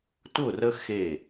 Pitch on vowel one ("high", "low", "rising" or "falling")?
falling